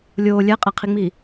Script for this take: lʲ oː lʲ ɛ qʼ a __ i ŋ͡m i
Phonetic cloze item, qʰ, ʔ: qʰ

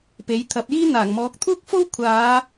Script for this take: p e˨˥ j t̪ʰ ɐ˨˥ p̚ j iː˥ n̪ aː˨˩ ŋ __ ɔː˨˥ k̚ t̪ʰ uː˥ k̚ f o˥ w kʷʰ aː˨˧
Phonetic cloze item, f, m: m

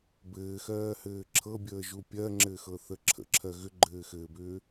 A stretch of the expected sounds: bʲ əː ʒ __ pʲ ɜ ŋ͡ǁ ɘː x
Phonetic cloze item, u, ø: u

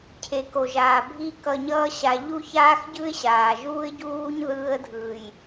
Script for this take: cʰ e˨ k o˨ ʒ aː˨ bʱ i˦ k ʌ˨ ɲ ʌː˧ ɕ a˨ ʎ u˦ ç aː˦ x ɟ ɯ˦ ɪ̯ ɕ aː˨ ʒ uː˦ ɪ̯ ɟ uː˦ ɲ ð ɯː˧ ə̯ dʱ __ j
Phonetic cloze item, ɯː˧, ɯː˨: ɯː˨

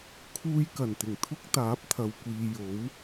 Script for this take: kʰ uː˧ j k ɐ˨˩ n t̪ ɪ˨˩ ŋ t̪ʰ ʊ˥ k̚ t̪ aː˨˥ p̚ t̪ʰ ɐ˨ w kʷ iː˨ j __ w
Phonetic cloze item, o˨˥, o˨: o˨˥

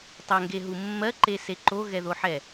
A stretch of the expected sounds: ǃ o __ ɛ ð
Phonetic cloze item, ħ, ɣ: ɣ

